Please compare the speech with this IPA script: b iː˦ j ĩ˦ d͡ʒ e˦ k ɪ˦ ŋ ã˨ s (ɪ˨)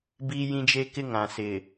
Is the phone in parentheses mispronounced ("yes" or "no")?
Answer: no